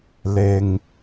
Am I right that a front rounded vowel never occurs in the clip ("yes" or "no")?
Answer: yes